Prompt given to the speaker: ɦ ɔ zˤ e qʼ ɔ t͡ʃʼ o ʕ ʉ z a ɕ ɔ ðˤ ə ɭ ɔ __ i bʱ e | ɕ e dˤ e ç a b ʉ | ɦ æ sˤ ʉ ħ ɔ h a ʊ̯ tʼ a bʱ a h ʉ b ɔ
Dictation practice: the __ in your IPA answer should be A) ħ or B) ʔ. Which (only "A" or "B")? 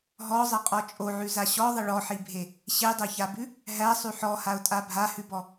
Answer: A